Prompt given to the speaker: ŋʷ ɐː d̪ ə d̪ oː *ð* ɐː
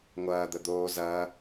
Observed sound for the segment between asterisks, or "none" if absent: z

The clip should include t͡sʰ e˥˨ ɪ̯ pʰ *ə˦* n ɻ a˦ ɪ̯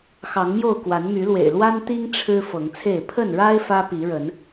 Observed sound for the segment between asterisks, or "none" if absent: ə˥˨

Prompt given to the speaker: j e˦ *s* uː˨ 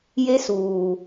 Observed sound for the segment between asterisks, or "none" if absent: s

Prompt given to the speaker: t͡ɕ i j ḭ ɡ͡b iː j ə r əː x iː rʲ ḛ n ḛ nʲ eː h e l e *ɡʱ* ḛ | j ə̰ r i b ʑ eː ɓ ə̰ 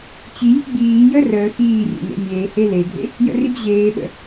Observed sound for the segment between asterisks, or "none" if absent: ɡʱ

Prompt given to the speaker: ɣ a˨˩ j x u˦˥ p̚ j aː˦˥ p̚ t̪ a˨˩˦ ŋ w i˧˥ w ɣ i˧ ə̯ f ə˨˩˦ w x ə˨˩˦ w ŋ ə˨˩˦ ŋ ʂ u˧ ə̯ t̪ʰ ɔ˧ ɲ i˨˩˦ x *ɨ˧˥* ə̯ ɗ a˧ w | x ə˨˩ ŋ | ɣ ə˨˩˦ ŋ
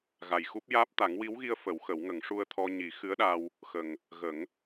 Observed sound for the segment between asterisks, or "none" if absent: ɨ˧˥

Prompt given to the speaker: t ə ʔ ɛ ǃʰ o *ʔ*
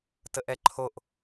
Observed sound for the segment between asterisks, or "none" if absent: ʔ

